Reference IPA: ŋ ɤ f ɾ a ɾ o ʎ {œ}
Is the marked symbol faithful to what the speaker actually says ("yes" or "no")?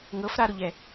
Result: no